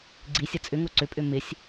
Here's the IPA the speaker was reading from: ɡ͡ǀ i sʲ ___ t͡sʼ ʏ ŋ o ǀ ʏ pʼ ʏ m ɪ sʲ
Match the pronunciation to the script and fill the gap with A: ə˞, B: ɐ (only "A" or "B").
B